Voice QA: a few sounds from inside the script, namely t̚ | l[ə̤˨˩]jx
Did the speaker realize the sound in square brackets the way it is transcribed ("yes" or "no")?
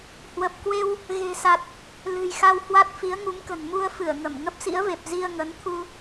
no